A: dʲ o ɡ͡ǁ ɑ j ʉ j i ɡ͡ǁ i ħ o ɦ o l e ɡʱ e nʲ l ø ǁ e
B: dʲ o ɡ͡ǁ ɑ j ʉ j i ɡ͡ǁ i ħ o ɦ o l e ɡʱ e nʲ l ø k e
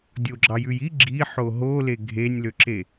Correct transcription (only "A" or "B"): A